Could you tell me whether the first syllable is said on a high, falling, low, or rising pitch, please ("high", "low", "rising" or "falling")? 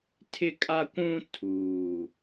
high